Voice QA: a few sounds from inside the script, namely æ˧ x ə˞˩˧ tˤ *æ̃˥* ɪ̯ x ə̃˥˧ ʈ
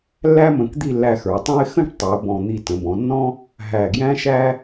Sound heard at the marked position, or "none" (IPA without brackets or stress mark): æ̃˥